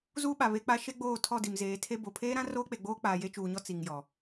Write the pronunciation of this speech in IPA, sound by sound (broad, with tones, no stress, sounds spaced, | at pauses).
z uː˦ ɓ a˨ β e˨ k͡p a˨ ʃ e˦ ɡ͡b oː˦˨ tʰ ɔ˦˨ d i˨ m z eː˨˦ tʰ e˦ b o˨ pʰ eː˦ ɾ ã˦ r oː˦ k͡p e˨ ɡ͡b oː˦ k͡p aː˨ j e˦ t͡ʃ uː˨ ɲ ɔ˦ t͡s i˨ ŋ j ɔ˨